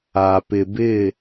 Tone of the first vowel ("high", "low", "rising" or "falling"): low